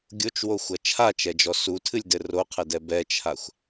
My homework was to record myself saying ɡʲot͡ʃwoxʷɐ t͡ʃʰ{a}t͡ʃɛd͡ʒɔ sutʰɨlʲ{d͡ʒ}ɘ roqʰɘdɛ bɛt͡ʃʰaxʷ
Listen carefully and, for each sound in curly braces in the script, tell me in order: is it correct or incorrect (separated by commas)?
correct, incorrect